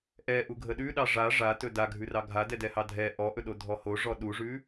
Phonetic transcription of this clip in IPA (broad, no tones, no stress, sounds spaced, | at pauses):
ʔ ɛ ʔ u ɡʱ ə ɗ ʉ ɗ ɑ ʐ a ʐ a t ɵ d a ɡʱ ʉ r ɑ ɡʱ a d ɛ d ɛ h ɑ dʱ ɛ ʔ ɔ ʔ ɵ ɗ o dʱ ɔ h o ʐ ɔ ɗ u ʐ ʉ